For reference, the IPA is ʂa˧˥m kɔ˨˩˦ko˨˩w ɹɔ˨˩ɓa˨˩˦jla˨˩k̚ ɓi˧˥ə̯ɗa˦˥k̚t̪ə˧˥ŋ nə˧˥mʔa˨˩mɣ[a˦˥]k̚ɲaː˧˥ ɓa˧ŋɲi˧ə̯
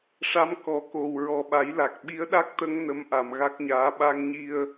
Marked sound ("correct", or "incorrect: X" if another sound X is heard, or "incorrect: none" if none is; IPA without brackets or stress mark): correct